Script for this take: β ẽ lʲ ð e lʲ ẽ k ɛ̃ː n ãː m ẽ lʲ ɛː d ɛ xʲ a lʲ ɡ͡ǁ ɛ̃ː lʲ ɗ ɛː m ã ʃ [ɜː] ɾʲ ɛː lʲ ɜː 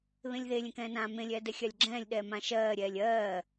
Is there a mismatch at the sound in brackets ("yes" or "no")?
no